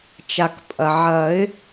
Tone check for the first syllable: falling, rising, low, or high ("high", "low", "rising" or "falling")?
low